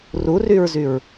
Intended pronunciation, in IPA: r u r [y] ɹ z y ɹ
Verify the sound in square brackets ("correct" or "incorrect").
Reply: correct